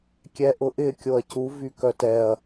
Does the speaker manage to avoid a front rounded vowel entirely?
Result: no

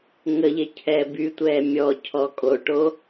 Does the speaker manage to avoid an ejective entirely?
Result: no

